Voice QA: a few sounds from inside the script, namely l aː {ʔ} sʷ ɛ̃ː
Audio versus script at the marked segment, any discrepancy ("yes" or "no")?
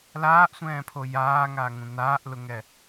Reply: no